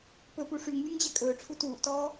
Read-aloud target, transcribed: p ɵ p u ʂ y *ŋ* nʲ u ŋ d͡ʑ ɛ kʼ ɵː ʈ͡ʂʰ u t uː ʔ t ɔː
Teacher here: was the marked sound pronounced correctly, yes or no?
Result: yes